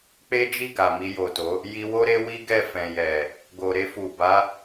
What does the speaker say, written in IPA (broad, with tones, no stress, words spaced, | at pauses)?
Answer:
k͡pe˦d͡ʒi˦˨ ɡa˨mi˧jo˨to˨˦ | ji˧wo˦ ɾe˦wi˦ɡɛ˦˨ fɛ̃˨jɛ˨ | ɡo˨ɾe˧fu˨ ba˨˦